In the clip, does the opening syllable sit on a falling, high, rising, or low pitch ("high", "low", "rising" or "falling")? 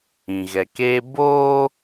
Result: low